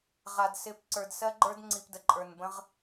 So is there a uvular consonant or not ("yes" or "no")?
yes